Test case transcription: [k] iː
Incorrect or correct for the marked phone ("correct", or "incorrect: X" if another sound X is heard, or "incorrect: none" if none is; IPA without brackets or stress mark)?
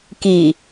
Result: correct